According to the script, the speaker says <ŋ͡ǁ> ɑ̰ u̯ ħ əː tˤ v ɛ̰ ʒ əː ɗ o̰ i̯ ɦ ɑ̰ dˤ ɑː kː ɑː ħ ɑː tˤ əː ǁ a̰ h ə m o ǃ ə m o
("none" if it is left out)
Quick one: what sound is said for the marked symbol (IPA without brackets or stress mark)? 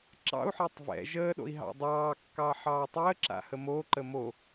ǁ